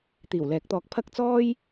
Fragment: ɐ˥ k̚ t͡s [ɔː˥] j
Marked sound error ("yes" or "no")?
no